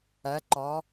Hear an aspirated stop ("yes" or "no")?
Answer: no